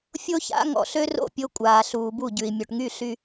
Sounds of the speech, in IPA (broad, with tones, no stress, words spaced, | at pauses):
fʲo˦ça̰˨˦ ŋɔ̰˨ ɬø˦ro̰˦˨ pʲo˦kʷʼaː˨ɬuː˨ bu˦˨ɟʉ˨i̯ mʲo˨ʈŋy˦˨ ɬy˦